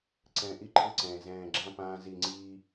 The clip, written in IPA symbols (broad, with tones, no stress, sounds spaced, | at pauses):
ǀ ɛ̃ː˨ ʔ i˦ ǃʰ ɯ˦ ǀ ɛ̃ː˨ z ɛ̃ː˨ ɡ͡ǁ ã˦ p ãː˦ z i˦˨ ŋ͡ǀ iː˦